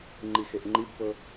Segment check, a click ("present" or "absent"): present